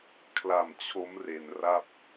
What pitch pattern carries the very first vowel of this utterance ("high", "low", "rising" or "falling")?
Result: low